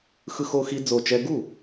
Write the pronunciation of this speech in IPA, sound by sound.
xɯ˦˥xo˦˥xi˦˥ d͡zo˥˩t͡ʃɛ˦˥ ɡu˥˩

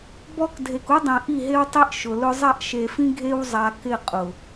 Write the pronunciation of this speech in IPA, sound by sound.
bɔ˦k dʱe˨ku˦dˤĩ˨ ʔi˦˨ɦe˦wtˤi˦ʔ ʃʊ˨lʊ˦ zˤa˦˨ʔʃe˨fĩ˦ ɡʱe˦wzˤa˨ kɪ˦˨qʼʊ˨

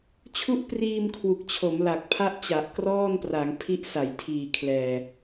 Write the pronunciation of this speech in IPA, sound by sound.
t͡ɕʰu˦˥ʔpriː˧mkʰwu˨˩k̚ t͡ɕʰo˩˦mla˨˩k̚pʰa˦˥ʔ t͡ɕa˨˩ʔkrɔː˥˩npra˩˦ŋ pʰi˦˥ʔsa˩˦jtʰiː˨˩kʰlɛː˨˩

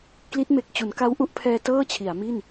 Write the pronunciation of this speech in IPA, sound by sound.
kli˦˥t̚me˨˩k̚t͡ɕu˩˦n ka˦˥wʔu˦˥ʔ pʰɛː˧ tɤː˥˩t͡ɕʰi˩˦a̯mi˥˩n

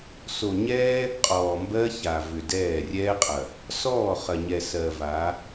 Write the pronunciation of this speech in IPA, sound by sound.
so˨ɲɛː˦ | qʼɔː˨mbɜ˦ça˨ vʏ˨dɛː˦˨ rʲɛː˦qʼɐ˨ | sɔː˦˨χɐ˨ɲɛ˨ sɜ˨va˨˦

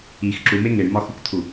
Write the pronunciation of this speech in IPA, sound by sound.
ix ǁume ŋeɳmɒxukt̪ʰu

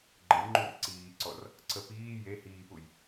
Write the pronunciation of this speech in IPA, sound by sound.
ɡ͡ǃəjŋ͡ǃur ǀiːǀɔr | ǀəpiː je hiːpuj

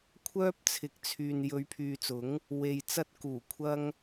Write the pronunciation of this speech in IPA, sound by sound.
kʷʰœː˥p̚t͡sʰɪ˨k̚t͡sʰyː˨n jɵ˨˧ɥpʰyː˨t͡sʊ˨˥ŋ | we˨j t͡sɐ˥t̚kuː˨˩kʷʰɐ˥ŋ

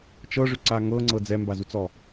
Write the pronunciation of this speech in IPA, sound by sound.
t͡ʃɤʐʏǀa ŋɤŋ͡ǀɤ d͡zɛmbazut͡sɔ

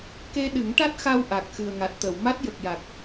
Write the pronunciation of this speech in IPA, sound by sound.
ke˧ɗɨ˨˩˦ŋʈa˦˥t̚xa˧w ʔa˨˩k̚ xɨ˨˩ə̯ŋa˨˩t̚t̪ə˨˩˨w ma˦˥t̚ jə˨˩k̚ja˨˩k̚

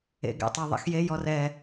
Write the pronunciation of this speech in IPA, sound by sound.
ḛ ɡɛ̰tˤɤðˤɛ̰xje jɔrɛ

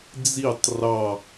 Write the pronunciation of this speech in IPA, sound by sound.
d͡zitˤ rɑ

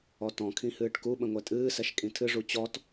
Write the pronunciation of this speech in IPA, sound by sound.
ɔtɔ̃kʰĩ hɨːʈkuɓə̃ ŋʷɛtʼɨːsɛʃ kʼĩtʰɨʐu t͡ɕɔt

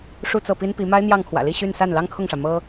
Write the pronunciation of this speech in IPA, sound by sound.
ʂu˥˧t͡sɤ˥˩pi˥npi˧˥ ma˥ɪ̯n̪jɑ˥˩ŋkʰwä̰˨˩li˥˧ ɕy˥˧n sa˥˩nlɑ˥ŋkʰʊ˥˩ŋʂä˩ mɤ˥

